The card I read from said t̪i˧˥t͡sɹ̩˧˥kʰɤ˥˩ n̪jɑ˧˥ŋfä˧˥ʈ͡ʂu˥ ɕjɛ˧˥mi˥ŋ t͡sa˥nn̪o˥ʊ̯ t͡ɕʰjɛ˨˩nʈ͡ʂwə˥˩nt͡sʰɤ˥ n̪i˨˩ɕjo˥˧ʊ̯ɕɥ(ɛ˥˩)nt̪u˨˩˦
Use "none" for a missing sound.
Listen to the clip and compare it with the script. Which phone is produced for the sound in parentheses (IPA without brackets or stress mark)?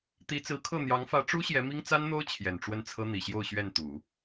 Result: ɛ˥˩